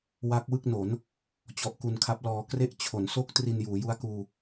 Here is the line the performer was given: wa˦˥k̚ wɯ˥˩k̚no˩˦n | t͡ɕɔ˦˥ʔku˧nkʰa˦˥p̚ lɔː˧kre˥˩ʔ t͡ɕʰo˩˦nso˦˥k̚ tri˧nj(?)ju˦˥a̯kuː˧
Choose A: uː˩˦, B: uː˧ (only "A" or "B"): A